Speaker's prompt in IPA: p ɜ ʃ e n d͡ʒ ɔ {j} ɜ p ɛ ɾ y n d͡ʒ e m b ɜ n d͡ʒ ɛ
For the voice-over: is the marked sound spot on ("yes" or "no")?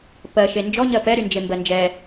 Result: no